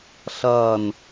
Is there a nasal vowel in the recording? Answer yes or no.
no